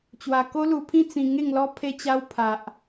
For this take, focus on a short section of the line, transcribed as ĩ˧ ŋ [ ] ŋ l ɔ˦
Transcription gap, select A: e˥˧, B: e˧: A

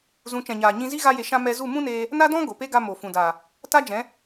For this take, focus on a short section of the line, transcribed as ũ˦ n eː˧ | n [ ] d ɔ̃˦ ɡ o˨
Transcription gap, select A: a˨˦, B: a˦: B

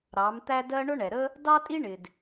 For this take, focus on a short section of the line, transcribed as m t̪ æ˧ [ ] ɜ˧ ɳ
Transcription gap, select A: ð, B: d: B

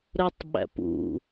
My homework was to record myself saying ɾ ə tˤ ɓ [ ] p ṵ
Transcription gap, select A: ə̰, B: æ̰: B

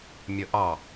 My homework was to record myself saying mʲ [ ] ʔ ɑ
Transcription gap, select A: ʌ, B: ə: B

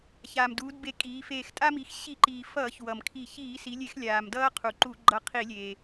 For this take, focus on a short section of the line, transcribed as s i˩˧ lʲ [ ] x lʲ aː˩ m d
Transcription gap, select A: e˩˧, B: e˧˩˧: B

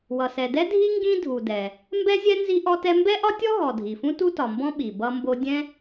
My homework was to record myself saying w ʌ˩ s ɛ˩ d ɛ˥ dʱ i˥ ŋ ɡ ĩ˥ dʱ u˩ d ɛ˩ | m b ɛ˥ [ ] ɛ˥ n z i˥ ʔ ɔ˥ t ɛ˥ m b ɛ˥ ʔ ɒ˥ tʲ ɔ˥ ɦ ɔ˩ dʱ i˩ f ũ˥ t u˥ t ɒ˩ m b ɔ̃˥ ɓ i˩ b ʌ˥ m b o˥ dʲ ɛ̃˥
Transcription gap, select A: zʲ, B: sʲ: A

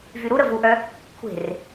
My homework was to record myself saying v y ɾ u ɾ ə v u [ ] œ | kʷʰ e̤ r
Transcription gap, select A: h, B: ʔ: B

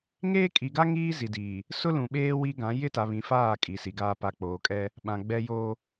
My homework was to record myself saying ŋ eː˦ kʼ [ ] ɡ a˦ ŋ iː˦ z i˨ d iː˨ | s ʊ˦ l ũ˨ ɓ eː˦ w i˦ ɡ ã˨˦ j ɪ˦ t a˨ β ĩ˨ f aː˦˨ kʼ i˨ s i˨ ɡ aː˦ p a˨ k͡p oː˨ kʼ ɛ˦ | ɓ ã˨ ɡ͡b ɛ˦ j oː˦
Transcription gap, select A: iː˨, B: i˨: B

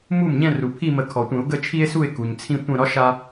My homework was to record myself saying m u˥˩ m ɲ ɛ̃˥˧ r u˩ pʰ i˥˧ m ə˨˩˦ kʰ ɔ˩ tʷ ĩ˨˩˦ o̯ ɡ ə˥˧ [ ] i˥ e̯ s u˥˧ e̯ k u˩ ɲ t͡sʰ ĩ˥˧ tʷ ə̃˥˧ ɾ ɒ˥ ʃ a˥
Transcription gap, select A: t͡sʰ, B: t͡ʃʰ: B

